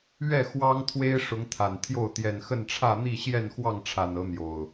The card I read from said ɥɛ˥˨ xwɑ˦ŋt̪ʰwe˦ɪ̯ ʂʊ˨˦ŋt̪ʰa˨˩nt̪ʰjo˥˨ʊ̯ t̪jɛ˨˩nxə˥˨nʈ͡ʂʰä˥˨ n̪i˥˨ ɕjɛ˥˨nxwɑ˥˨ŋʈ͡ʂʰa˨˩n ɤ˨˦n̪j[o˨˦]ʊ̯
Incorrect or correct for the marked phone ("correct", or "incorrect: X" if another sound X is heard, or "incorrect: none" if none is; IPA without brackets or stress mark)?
incorrect: o˨˩